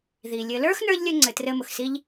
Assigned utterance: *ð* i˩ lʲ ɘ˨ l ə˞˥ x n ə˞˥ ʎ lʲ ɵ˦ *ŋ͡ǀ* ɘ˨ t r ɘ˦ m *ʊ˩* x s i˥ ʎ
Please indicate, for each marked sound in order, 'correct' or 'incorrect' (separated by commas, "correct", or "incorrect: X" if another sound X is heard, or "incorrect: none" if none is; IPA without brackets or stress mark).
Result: correct, correct, correct